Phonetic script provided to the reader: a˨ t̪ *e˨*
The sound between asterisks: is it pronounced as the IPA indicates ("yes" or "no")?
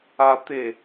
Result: yes